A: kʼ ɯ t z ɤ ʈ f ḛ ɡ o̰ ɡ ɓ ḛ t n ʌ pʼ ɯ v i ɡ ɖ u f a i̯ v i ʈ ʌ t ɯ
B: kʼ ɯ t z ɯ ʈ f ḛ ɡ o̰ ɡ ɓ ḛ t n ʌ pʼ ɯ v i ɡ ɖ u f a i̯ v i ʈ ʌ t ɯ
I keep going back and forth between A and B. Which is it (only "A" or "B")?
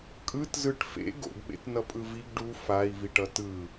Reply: B